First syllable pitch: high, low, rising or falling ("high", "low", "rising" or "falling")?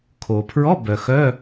low